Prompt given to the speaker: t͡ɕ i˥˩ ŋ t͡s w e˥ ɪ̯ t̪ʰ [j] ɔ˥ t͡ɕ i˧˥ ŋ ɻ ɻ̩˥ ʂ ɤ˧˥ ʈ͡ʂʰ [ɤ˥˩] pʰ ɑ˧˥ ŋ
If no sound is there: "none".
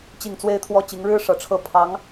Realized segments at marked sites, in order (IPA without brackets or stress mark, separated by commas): w, ɤ˥˩